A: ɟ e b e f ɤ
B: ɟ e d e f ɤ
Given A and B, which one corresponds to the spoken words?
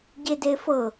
B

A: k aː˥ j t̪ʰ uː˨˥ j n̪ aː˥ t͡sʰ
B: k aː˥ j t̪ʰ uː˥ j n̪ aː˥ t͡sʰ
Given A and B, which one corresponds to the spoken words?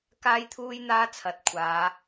B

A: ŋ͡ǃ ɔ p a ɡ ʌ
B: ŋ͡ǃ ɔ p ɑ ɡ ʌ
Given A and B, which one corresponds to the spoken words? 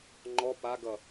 A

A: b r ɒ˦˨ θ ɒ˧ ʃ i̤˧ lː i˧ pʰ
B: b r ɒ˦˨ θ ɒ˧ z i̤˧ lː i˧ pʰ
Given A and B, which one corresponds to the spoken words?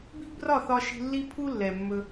A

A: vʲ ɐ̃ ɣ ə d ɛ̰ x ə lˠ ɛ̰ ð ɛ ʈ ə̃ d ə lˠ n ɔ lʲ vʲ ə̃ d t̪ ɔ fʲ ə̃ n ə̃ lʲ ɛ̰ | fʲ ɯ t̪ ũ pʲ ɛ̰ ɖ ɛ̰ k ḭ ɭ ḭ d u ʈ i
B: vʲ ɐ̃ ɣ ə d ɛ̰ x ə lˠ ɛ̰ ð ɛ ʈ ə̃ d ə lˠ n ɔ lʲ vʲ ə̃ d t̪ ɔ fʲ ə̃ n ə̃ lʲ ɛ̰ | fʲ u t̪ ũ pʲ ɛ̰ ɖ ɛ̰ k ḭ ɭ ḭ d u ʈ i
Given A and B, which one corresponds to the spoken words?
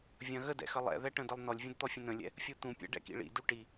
B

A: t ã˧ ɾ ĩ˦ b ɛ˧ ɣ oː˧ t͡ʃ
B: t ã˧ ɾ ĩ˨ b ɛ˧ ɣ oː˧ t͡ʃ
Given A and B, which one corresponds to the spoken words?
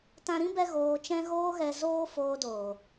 A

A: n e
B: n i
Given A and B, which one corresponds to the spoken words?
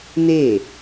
A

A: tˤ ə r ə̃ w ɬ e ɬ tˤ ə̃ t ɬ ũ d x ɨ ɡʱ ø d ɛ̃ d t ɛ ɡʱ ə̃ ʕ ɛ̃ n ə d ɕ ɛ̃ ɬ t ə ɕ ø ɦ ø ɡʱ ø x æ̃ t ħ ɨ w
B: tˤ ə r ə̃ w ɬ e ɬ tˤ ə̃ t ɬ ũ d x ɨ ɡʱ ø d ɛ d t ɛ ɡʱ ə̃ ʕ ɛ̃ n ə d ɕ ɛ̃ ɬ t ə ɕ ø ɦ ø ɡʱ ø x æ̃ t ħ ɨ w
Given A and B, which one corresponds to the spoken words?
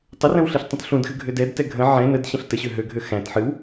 B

